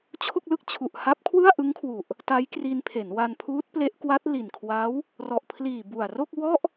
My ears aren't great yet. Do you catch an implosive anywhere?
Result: no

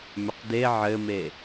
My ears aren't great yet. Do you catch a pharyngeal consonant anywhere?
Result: yes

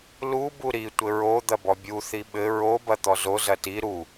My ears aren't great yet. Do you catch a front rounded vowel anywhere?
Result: no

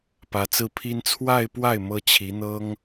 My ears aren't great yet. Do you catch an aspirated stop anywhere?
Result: yes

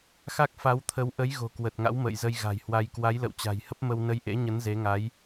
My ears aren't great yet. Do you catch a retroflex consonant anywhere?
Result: no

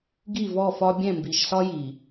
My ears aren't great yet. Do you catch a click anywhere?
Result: no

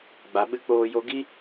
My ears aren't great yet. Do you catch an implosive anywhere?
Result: yes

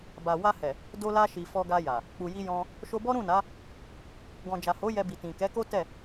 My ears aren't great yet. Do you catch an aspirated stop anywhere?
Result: no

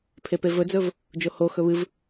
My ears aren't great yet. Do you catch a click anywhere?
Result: no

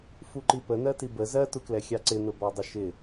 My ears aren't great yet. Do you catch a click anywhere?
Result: yes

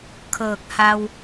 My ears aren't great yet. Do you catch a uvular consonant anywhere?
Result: no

